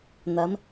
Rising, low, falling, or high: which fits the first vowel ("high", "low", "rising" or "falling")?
rising